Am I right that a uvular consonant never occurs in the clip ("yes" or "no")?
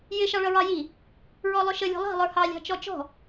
yes